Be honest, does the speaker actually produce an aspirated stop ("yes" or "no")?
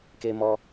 no